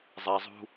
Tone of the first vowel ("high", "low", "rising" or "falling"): low